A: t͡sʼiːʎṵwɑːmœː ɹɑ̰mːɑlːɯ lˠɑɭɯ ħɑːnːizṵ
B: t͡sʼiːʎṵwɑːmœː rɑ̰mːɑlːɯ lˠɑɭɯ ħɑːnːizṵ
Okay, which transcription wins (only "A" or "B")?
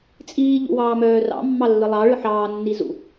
B